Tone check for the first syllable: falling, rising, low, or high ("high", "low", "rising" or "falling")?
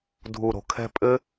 low